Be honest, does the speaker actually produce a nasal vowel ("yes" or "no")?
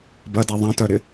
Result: yes